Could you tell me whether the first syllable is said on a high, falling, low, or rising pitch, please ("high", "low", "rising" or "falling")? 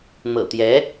low